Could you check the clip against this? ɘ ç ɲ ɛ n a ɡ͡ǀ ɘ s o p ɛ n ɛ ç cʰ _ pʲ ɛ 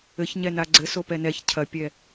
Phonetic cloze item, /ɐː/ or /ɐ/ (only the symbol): ɐ